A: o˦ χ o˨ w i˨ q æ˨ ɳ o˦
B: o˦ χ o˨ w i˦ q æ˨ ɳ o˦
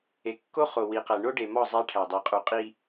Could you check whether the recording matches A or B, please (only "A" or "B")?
A